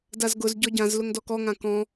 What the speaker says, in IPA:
d a z ɡ ʊ z ɟ ɔ ɟ ã z l ʊ ŋ d ɔ k ɔ ŋ ã k ɔ̃

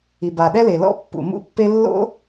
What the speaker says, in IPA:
i˩ b a˩ ɗ ɛ˥ l e˩ l ɔ̰˥ pː ṵ˩ m ṵ˥ pː e˥ lː o̰˥

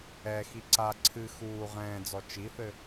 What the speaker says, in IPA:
ɛ x i ǀ a ǀʰ ɨ x uː ʁ ɛ̃ː d͡z ɔ t͡ʃ i θ ɘ

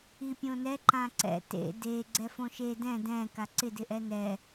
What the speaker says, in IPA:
i pʲ õ n ɛ ǃ ã ǀ ɛ̰ t ḛ d e ɡ͡ǀ ɛ f õ ʃ e d ɛ̃ d ɛ̃ k a ǀ ɪ d ɪ ʔ ɛ n ɛ

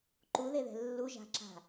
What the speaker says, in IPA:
ǃ u ð e ð ɛ̤ lː u ʒ a̤ ǁ a̤

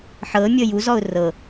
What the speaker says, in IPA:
ħ ɤ mʲ ɤ j u z ɔ ʊ̯ r ɤ

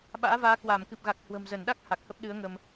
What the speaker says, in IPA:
ɓ a̰ː˧˥ v aː˨˦ k w aː˧˩ m k ɨ˨˩ p̚ ɣ a˨˩ k̚ h w ə̤˨˩ m z ə˧˩ n ɗ a˦˥ k̚ h a˨˩ k̚ h ə˦˥ p̚ ɗ ɨ˨˦ ə̯ ŋ ə˧ m

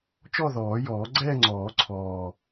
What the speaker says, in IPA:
t͡ʃ ɔ˥˧ ð ɔː˨˩˦ j ɔː˨˩˦ ɡ͡ǀ ɛː˥˧ ŋ͡ǀ ɔː˨˩˦ ǀʰ ɔː˨˩

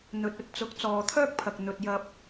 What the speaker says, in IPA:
n̪ ɵ˨ t̚ ɵ˧ t̚ t͡s ʊ˨˥ k̚ t͡s ɔː˨ t̪ʰ œː˥ k̚ pʰ ɐ˨ k̚ n̪ ɵ˨ t̚ j ɐ˧ p̚

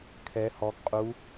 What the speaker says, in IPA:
kʰ ɛ h ɔ ɡ qʼ u

